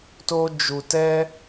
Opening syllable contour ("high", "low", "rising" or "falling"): high